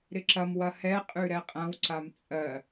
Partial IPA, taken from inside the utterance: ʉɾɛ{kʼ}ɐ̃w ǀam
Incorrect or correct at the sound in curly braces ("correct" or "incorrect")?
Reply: incorrect